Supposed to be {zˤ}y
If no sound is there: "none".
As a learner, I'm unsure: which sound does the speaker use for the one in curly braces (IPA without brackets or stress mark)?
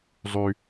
zˤ